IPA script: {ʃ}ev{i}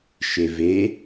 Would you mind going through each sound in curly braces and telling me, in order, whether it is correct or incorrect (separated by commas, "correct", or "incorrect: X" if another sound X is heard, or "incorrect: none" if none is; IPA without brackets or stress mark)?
correct, incorrect: e